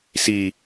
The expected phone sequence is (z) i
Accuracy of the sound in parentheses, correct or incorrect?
incorrect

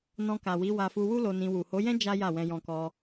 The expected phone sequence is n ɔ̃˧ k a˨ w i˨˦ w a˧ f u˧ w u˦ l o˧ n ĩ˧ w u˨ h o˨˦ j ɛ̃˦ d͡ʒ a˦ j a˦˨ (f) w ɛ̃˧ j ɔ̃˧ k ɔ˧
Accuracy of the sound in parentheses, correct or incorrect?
incorrect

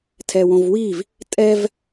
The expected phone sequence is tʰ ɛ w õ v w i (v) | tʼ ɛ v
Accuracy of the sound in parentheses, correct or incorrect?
correct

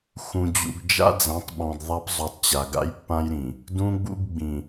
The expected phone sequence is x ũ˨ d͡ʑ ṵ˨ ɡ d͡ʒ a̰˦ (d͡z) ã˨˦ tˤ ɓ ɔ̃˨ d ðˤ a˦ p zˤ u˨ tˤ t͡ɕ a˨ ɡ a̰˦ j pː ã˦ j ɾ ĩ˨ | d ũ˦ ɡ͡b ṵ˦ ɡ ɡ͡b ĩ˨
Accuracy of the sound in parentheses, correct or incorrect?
correct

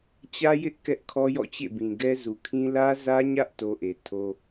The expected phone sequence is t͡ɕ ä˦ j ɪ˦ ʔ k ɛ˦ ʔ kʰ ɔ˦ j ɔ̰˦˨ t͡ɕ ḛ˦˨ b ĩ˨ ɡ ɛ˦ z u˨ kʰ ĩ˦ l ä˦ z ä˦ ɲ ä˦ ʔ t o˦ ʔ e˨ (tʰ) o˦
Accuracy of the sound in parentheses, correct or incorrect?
correct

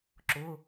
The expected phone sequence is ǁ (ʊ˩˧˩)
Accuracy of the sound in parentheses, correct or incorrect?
correct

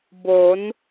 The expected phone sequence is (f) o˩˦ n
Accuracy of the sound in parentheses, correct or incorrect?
incorrect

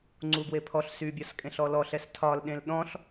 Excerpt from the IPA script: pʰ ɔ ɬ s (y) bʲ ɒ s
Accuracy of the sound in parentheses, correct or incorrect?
correct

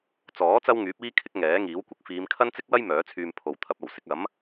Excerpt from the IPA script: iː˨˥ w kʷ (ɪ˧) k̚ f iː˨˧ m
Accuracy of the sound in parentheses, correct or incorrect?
incorrect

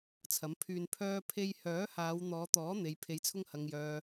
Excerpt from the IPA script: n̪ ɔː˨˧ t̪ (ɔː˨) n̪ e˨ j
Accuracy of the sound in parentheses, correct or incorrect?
incorrect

